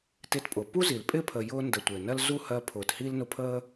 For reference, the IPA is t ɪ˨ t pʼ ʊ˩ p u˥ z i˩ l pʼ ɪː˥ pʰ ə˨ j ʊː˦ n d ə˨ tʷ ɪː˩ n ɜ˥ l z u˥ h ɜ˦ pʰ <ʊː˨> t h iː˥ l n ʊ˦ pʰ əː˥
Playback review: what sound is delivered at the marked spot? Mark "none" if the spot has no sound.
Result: ʊː˨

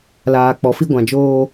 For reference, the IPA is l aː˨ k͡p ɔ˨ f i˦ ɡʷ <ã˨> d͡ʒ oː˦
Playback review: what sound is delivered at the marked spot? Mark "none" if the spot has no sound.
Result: ã˨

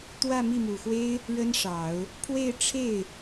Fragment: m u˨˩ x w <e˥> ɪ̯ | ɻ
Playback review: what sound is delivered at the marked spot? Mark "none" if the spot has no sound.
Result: e˥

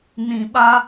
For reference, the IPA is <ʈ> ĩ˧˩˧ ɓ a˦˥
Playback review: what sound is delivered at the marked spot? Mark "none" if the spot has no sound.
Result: n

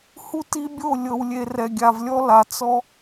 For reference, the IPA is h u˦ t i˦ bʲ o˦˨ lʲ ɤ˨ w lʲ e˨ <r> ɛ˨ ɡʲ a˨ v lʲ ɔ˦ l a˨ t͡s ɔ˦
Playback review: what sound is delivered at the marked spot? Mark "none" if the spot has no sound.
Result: r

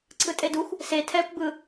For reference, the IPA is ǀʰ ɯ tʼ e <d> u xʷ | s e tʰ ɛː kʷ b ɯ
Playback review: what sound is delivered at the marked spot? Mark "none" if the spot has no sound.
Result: d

